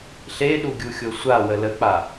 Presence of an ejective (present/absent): absent